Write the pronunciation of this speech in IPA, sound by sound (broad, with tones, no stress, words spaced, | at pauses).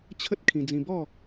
t͡ɕʰə˦t̚ kʰĩ˧d͡zĩ˧ bɔ˥˧